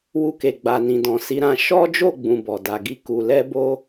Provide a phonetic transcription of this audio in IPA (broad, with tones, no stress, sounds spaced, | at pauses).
w u˧ k e˨ ɡ͡b a˨ n ĩ˨ d ɔ̃˨ s i˨˦ ɾ ã˧ ʃ ɔ˦ d͡ʒ o˦˨ ɡ͡b ũ˨ b ɔ˨ d a˨ ɡ i˧ k u˨ l ɛ˧ b o˦